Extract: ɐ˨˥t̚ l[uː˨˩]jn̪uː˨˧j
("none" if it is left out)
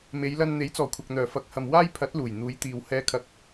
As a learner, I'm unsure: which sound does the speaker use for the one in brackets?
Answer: uː˨˩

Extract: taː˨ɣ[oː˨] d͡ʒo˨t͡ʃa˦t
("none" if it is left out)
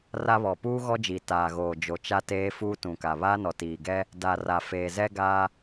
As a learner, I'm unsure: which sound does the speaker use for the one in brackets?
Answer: oː˨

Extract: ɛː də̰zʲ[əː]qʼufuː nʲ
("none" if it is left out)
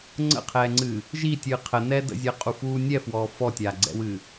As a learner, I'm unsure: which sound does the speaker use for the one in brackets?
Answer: əː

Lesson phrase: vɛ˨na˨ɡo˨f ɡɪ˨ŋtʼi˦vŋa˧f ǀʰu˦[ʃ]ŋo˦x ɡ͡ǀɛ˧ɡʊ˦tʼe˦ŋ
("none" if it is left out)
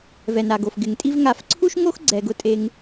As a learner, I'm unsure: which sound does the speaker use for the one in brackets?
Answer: ʃ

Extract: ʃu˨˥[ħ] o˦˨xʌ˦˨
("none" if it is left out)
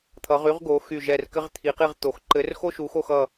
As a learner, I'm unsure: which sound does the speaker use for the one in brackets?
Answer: x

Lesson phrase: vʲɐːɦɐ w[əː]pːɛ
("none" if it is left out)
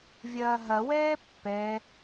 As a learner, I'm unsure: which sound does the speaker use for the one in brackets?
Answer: ɛː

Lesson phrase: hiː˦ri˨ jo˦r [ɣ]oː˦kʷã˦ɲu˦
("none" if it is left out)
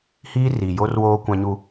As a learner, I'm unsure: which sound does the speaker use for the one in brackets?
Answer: w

